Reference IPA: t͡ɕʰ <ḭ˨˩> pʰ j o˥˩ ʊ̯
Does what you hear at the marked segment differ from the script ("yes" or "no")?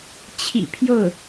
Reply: no